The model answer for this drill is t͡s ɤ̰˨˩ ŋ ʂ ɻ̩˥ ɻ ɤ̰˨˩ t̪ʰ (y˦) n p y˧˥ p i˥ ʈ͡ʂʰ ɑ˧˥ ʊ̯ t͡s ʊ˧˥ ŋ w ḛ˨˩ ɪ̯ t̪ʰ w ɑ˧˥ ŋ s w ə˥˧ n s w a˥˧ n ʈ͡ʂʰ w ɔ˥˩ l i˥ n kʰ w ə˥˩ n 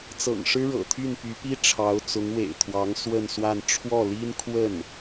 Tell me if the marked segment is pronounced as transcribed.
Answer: no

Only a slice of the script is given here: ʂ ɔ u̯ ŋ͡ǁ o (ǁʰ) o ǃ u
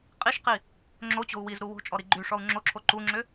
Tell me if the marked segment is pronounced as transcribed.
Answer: yes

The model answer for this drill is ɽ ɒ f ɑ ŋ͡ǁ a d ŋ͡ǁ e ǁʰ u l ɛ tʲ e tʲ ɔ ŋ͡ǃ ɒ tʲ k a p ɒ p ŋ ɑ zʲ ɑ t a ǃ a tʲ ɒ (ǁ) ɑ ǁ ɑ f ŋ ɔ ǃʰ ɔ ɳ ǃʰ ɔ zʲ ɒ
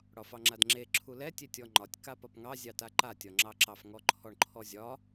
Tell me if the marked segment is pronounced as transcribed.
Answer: no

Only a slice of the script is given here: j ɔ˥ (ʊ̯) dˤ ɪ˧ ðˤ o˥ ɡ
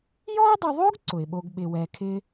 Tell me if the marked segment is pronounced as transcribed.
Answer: yes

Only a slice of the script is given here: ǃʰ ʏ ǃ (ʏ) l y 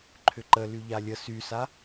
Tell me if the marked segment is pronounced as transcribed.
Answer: no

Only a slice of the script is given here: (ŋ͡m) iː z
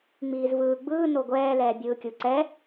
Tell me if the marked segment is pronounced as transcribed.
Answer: yes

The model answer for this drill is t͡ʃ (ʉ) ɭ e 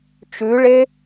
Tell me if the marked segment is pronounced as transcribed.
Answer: yes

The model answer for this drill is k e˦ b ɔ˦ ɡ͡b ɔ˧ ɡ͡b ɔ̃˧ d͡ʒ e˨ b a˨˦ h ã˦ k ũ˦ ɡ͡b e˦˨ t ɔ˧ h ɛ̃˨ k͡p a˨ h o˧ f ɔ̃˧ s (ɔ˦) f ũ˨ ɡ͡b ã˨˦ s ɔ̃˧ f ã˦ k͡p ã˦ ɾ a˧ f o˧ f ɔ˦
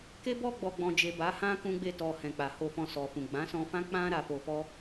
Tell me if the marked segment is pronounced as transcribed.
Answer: no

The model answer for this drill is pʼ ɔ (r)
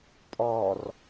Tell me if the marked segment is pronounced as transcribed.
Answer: yes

